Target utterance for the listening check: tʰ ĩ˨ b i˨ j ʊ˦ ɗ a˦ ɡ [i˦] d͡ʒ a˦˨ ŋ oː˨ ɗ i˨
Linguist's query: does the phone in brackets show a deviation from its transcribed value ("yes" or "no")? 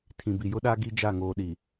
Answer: no